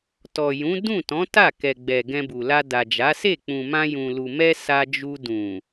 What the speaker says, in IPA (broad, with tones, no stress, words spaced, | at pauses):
tɔ˨jũ˨˦ dũ˦˨tɔ̃˨˦ ta˦˨ kɛ˨ɡ͡bɛ˨ ɡɛ̃˧bu˨la˧ da˨d͡ʒa˨˦se˦˨ k͡pũ˨mã˧jũ˨lu˨ mɛ˧ sa˧d͡ʒu˧ dũ˨